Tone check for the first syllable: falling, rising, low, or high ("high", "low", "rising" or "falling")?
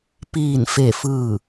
falling